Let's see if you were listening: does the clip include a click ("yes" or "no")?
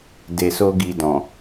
no